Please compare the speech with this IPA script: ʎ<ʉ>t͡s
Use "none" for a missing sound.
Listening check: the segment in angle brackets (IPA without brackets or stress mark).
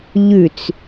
ʉ